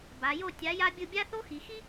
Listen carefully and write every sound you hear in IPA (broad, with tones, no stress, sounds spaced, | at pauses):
b a˩˧ j o˥˧ tʲ a˩˧ j a˧ bʲ ɯ˧˩ bʲ a˥ θ o˥ x i˩˧ x i˥